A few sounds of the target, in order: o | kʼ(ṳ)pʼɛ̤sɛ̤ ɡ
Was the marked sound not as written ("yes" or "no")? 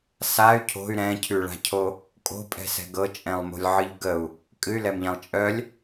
yes